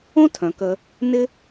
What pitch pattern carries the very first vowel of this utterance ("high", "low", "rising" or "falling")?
high